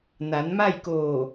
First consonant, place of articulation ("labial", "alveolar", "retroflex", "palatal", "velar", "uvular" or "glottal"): alveolar